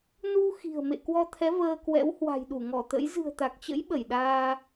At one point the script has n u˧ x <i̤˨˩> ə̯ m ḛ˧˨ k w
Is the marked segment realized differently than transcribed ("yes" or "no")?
no